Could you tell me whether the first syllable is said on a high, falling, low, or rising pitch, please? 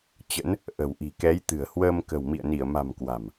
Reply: rising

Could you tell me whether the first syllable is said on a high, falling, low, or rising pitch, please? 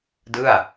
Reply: falling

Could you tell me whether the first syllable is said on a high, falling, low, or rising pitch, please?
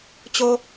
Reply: high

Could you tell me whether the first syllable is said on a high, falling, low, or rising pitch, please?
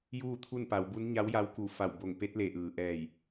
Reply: falling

